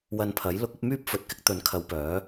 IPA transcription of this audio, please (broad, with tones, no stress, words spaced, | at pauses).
wɐ˧npʰɐ˨˥j lʊ˧k̚ɐ˨˥p̚myː˥p̚ fɵ˨t̚kɪ˥k̚ t̪ɵ˨˥nkʰɐ˨˧w pœː˨˥